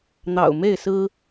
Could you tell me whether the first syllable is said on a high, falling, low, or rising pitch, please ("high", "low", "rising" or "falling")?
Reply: low